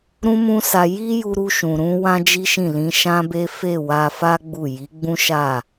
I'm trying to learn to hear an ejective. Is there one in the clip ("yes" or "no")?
no